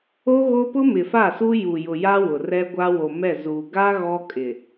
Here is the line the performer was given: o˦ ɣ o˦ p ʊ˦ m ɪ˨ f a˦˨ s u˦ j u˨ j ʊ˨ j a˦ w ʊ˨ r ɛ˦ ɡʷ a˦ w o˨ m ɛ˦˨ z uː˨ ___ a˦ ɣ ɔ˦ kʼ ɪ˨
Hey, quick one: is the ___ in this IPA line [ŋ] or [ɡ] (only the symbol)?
ɡ